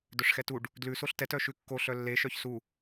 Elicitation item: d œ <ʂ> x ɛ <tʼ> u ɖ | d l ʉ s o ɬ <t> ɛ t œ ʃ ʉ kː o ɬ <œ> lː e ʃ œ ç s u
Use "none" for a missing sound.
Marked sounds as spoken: ʂ, t, t, œ

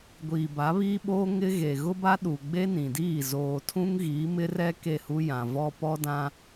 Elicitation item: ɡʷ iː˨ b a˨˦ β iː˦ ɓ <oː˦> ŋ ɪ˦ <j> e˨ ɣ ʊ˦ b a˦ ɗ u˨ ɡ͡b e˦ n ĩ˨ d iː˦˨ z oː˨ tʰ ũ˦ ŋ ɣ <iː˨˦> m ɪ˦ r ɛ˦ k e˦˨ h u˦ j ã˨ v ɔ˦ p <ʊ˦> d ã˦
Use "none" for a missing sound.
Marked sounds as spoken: oː˦, ɣ, iː˨˦, ɔ˦

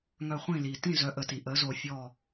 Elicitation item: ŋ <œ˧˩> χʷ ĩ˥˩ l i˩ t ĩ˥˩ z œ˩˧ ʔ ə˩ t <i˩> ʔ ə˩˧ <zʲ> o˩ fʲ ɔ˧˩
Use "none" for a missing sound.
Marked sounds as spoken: œ˧˩, i˩, z

